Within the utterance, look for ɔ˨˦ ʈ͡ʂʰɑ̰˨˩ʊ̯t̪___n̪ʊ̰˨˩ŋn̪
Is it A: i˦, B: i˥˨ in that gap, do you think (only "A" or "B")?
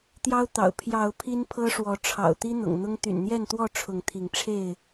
A